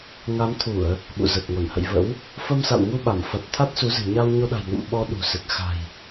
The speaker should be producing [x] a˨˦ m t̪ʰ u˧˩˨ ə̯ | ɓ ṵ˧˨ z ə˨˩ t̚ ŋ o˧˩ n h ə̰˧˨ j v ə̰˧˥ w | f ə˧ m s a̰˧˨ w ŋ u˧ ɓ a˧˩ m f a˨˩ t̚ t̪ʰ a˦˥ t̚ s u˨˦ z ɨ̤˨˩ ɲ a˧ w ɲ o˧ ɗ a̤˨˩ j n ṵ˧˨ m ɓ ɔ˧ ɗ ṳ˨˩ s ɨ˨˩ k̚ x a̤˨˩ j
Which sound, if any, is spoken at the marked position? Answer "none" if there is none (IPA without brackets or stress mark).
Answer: ŋ